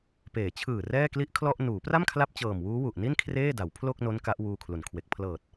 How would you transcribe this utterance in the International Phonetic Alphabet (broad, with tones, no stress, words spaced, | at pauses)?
peː˩˦t͡ɕʰɯː˨˩ rɛː˥˩kli˥˩ʔkʰlɔ˥˩ʔ nuː˩˦pra˥˩mkʰla˦˥p̚ t͡ɕɤː˨˩mwuː˦˥wu˨˩ʔni˥˩n kʰreː˥˩da˩˦wpʰlo˥˩k̚ no˦˥n ka˦˥ʔwuː˧kʰlu˩˦nkʰwe˨˩k̚ pʰlɤː˨˩t̚